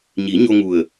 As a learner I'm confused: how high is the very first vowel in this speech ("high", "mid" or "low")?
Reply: high